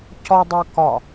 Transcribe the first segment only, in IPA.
c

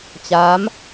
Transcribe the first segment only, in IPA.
t͡ɕ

